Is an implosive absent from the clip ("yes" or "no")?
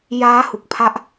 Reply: yes